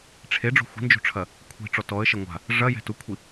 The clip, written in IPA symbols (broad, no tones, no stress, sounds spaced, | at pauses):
ʈ͡ʂʰ e ɖ͡ʐ o̤ xʷ i̤ n d͡ʒ o̤ ʈ͡ʂʰ ɐ | kʷʰ i̤ ʈ͡ʂ ɔ t ɔ ə̯ ʃ ɐ ŋʷ a̤ | ʐ ɐ j ɛ̤ t u kʷʰ i